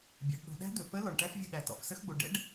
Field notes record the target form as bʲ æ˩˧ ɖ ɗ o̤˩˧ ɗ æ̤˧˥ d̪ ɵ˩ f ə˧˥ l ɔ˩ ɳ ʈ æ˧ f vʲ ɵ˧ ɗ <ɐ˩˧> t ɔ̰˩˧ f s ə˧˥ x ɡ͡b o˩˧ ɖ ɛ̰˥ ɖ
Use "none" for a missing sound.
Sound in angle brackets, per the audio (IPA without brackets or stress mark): æ˩˧